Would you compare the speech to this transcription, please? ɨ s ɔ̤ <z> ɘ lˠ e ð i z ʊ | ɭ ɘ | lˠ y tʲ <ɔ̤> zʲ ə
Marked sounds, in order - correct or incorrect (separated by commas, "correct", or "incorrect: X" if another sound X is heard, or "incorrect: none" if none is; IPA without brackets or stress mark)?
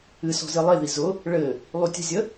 correct, incorrect: ə̤